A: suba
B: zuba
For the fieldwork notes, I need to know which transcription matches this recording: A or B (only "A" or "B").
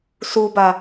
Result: A